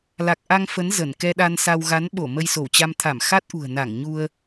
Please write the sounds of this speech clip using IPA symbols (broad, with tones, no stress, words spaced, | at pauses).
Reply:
la˨˩k̚ʔa˧ŋ fə˨˦n zə˧˩n kɛ˧ɗa˧nsa˧w ɣa˨˦nɓo˧˩ mə˧jso˧˩wt͡ɕa˧m t̪ʰa˧˩mxa˦˥t̚ʔṳ˨˩ə̯na˧˩ŋ ɲu˧ə̯